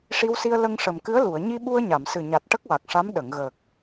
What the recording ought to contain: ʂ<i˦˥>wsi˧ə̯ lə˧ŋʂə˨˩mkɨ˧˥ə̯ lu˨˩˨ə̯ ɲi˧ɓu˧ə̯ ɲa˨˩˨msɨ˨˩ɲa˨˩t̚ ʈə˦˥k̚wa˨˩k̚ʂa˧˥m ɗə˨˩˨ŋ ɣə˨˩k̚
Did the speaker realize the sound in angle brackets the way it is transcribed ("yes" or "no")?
no